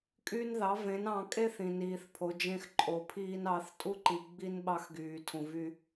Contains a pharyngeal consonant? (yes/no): no